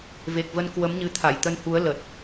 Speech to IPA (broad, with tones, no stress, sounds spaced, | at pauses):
v e˨˩ k̚ v ə˧ n k w ə˨˦ m ɲ ɨ˨˦ t̪ʰ a˧˩ j t̪ ə˧ n h u˨˦ ə̯ l ə˨˩ t̚